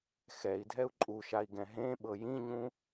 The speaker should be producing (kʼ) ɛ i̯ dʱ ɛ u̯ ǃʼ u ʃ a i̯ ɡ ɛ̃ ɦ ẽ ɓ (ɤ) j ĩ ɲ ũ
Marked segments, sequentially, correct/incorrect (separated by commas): incorrect, correct